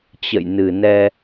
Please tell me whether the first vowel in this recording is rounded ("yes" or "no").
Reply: no